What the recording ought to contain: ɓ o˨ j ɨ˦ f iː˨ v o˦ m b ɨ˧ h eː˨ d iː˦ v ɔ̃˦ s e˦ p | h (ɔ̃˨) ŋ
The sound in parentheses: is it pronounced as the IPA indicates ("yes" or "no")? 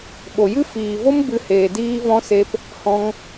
no